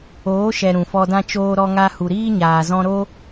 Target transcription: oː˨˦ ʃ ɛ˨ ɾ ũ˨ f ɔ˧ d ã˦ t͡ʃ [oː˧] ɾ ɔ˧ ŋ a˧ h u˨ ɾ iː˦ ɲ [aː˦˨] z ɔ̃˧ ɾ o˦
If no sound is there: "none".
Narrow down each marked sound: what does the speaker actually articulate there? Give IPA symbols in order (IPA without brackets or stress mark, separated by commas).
oː˧, aː˨